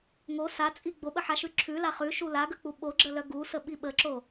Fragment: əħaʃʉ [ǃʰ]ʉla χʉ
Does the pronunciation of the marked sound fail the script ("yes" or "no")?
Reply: yes